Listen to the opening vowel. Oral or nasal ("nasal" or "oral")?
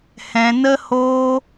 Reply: nasal